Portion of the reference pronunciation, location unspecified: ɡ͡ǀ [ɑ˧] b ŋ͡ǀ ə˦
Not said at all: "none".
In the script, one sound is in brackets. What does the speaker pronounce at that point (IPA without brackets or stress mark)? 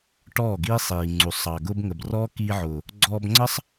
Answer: ɔ˧